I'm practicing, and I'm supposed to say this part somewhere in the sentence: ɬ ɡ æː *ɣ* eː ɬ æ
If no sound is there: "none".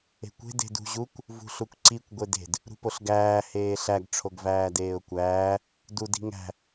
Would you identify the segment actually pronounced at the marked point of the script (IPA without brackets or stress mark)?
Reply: h